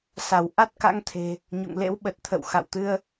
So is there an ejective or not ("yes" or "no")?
no